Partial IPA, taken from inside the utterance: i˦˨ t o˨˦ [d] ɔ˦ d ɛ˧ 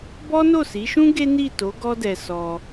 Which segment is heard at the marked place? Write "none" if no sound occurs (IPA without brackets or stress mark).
ɡ